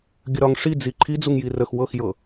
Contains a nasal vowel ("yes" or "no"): no